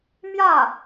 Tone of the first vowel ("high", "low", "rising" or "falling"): falling